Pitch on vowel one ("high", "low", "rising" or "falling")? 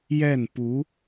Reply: falling